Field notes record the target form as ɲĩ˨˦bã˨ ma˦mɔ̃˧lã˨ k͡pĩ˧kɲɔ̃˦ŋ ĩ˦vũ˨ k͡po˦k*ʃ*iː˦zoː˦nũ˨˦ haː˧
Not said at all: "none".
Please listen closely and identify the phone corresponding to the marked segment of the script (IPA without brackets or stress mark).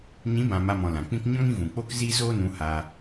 z